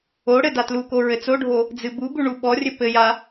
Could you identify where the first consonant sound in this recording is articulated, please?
retroflex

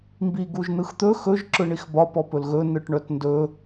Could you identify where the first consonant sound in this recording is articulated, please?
labial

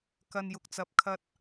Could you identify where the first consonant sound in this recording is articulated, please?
velar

